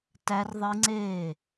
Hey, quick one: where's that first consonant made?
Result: tongue tip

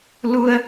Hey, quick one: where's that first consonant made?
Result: tongue tip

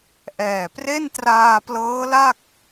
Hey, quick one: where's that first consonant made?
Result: throat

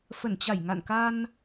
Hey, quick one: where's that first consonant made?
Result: lips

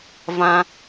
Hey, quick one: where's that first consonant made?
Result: lips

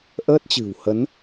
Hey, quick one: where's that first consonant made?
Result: throat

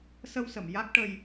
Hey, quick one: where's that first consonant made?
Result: tongue tip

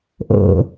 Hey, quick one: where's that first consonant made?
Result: throat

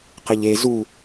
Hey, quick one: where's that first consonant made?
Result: uvula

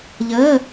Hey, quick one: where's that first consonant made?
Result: palate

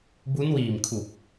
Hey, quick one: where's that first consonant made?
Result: lips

